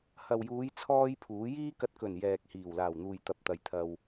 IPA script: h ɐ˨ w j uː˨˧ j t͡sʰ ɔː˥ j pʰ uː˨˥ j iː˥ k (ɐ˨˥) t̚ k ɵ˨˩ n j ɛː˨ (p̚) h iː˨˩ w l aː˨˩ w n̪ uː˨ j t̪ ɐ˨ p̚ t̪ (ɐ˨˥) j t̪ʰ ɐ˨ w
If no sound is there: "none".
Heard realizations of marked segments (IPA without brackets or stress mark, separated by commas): ɐ˧, k̚, ɐ˨